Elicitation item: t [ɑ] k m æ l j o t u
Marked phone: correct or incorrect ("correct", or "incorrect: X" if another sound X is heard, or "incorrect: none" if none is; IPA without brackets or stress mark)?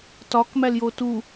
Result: incorrect: ɒ